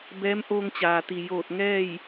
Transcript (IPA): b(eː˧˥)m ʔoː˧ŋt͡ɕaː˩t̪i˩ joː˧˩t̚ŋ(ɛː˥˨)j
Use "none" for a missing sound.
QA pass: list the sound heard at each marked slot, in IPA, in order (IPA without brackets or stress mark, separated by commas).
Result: ɛː˧˥, ɛː˥˨